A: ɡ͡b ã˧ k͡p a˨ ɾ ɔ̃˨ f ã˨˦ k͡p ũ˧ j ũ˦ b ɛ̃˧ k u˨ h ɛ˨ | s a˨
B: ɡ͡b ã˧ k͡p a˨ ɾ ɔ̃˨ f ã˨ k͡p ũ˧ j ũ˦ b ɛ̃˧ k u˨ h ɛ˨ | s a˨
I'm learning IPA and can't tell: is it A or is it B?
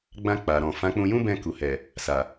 A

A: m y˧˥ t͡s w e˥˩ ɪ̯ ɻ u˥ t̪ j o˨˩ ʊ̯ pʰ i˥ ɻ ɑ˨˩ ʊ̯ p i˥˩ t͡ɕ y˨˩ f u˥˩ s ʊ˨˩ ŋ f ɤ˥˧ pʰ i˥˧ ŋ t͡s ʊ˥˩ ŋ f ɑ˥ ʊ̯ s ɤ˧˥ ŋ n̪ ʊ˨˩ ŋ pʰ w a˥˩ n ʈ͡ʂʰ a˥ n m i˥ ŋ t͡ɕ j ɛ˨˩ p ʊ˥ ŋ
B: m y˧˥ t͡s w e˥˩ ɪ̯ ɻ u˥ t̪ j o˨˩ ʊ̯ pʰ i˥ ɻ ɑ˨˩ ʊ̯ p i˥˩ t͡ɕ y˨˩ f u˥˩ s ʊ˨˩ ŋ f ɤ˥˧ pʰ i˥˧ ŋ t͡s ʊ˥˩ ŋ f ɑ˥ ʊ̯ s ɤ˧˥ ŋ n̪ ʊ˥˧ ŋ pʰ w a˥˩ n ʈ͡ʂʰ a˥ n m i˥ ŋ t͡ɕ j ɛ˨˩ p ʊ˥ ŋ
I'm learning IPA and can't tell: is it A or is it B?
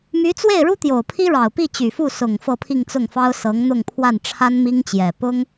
B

